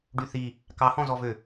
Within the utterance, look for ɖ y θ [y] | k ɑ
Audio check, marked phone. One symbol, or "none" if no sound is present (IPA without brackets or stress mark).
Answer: i